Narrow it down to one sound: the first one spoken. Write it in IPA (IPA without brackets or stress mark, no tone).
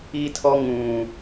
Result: i